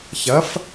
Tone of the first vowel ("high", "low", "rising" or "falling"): rising